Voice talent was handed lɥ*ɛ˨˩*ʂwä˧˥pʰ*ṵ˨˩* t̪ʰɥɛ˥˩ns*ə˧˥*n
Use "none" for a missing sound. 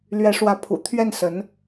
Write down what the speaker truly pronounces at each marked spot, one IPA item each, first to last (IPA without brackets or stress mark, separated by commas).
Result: ɛ˧˥, ṵ˨˩, ə˧˥